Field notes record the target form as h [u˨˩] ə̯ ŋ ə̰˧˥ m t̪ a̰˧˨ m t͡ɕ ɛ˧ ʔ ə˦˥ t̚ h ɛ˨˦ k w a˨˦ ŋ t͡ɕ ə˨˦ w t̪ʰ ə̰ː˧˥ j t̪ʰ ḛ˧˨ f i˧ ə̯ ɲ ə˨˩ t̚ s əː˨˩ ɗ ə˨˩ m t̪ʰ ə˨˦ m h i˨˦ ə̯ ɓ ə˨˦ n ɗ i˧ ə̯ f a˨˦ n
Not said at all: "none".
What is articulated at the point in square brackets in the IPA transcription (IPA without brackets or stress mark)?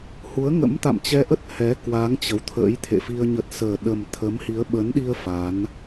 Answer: u˨˦